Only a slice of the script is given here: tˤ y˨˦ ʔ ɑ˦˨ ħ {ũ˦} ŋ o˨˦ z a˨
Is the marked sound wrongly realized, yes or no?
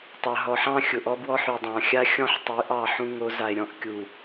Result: no